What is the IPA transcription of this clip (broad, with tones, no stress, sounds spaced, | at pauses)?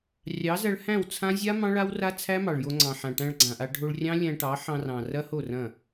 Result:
rʲ ɑ˨˦ z ɐ˧ ɭ h æ̃˦˨ w t͡sʰ ã˦ zʲ a˦ m ɑ̃˦ ɭ a˦ w r a˦ t͡sʰ æ˦ m ɑ˨ ɭ j o˧ ŋ͡ǀ ɑ̃˨ ħ ã˨ ʈ æ̃˧ ɭ ɡ͡ǀ ã˨ ʔ a˧ ɖʱ o˧ ɭ rʲ ɑ̃˦ lʲ æ̃˧ ʈ ɑ˨˦ ħ ɑ̃˧ r ɑ̃˨ r ɐ˦ h o˦˨ r ɐ̃˦˨